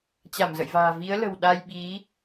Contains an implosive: yes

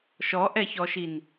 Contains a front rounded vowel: no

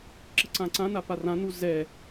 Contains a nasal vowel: yes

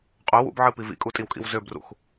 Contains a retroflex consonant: no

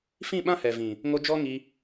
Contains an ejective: no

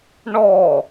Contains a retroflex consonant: yes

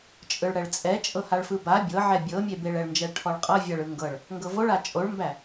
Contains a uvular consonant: yes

